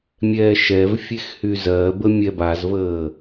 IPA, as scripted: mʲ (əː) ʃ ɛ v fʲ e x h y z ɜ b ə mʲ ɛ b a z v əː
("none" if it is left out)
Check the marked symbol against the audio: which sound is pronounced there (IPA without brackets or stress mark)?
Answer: ɛː